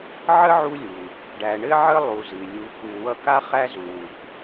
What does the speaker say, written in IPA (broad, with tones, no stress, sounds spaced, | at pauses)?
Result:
ʕ ə˥ ʕ u˦ lʲ u˩ | ɖ æ˨ ɳ ɘ˥ ʕ ə˥ lˠ u˨ z ɨ˩ lʲ u˨ k u˨ w ʌ˦ k a˥ χ æ˦ z u˩ w u˩ k